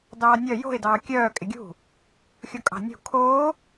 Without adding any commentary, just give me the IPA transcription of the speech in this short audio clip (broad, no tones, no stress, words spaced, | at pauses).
dɑːnʲœ jo̤ɪ̯dɑː kʲœː kʼɪɡʲṳ | xʲokʼɑ̤nʲṳ kʰoː